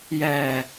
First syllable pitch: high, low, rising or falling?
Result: low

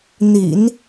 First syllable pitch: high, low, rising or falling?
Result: low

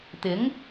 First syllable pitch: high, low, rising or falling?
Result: rising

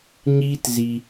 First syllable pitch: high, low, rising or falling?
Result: high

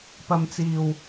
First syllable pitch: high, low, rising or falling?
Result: low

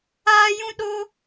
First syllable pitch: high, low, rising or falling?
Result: high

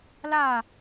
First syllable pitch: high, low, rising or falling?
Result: falling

